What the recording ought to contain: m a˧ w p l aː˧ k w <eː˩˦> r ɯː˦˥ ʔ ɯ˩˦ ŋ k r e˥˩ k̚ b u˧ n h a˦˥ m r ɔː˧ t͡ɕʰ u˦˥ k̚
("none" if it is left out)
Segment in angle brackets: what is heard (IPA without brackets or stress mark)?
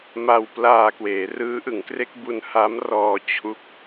eː˩˦